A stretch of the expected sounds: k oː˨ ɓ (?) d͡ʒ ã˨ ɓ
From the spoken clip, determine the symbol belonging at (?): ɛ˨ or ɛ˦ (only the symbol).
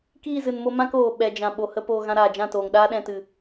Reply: ɛ˨